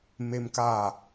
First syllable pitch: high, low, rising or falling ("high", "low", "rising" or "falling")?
high